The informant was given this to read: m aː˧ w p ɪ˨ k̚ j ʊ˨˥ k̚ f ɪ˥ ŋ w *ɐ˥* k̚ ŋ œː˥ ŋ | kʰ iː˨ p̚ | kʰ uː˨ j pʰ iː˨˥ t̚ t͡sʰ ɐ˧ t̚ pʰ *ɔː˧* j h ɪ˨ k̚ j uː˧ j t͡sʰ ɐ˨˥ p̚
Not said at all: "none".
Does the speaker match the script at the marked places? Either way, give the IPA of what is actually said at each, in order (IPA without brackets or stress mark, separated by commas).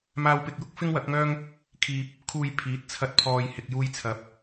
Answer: ɐ˨˥, ɔː˨